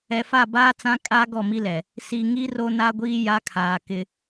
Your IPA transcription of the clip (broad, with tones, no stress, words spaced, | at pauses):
ɛ˨fa˦˨baː˦t͡sã˦ kʼa˦ ɡɔ˦˨mi˦lɛ˨ | si˨ŋi˦ ro˦na˦ɡʷiː˦ ja˦kʰaː˨ kɪ˦